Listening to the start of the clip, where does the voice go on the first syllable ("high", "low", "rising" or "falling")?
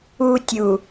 high